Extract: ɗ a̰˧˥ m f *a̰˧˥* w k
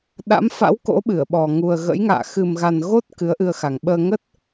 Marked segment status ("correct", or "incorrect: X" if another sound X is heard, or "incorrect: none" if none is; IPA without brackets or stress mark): correct